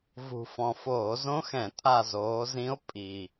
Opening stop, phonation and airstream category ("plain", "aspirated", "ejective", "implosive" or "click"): ejective